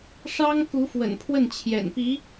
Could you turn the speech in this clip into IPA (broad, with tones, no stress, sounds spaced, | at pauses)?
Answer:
ʂ ɑ˥ ŋ k u˧˥ f w ə̰˨˩ n pʰ w ə˥˩ n t͡ɕʰ j ɛ̰˨˩ n p i˧˥